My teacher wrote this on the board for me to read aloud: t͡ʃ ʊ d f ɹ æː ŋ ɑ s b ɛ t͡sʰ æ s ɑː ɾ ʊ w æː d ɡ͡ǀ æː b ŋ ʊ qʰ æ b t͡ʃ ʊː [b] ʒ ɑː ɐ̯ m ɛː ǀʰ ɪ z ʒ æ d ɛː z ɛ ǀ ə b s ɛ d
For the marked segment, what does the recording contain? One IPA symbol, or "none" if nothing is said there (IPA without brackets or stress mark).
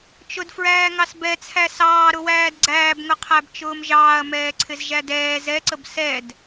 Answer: m